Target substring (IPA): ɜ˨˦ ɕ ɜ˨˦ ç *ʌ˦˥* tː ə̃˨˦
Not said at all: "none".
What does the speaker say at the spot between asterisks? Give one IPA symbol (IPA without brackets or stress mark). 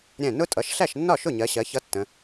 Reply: ʌ˦˥